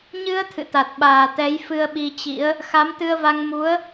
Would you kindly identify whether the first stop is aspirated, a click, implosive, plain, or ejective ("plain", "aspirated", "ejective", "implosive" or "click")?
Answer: aspirated